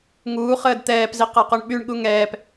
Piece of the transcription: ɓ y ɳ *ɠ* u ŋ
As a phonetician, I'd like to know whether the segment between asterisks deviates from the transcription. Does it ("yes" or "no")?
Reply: no